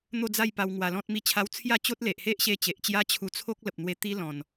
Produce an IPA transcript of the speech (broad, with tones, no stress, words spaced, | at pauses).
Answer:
n̪o˥˧d͡za˥˧jpa˧w ŋwa˧lɔ̃˦t̚mi˥˧t͡ɕʰa˦w t͡sʰja˥˧t͡ɕo˦t̚le˨ʔ he˦ʔɕe˧ t͡ɕe˨ʔt͡ɕja˦ t͡ɕʰu˧t͡sʰo˦k̚ lə˨p̚n̪we˧t̪i˦ lɔ̃˨˩n